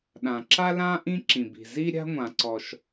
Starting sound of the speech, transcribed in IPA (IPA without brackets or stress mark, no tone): ɗ